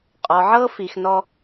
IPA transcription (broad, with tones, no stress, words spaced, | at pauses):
qʼɔ˨ʕɤ˦fi˨xnɔ˧